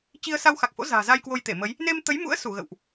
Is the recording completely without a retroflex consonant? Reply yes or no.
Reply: yes